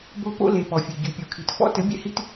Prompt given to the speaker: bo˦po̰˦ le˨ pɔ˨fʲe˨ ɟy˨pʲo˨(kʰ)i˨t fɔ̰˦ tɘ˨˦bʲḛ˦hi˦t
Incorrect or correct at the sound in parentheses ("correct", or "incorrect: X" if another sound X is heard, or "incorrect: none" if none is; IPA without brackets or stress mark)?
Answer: correct